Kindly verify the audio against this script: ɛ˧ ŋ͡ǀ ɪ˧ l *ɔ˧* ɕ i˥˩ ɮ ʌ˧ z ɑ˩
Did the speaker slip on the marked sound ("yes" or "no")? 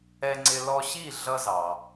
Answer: no